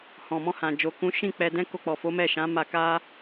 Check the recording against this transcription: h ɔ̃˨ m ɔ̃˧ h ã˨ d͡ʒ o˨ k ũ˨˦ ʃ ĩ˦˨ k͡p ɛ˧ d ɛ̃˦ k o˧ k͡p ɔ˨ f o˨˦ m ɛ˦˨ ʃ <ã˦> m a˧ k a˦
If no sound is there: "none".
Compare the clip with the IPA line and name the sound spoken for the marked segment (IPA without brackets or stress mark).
ã˨˦